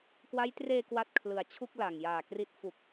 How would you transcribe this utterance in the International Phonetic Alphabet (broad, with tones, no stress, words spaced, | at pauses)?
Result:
kwa˦˥jtreː˧ kwa˥˩t̚kʰlɯ˨˩a̯ t͡ɕʰu˥˩k̚la˨˩ŋjaː˨˩kri˦˥t̚ fu˨˩k̚